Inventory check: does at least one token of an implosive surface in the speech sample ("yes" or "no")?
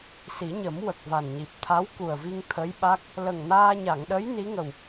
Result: yes